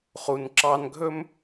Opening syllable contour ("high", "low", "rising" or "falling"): low